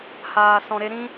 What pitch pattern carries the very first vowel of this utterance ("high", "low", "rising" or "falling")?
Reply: low